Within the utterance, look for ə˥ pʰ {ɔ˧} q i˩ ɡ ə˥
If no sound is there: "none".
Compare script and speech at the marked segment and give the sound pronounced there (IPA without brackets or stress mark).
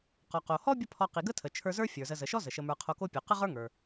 ɔ˧